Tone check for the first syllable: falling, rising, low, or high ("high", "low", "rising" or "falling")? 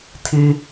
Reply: high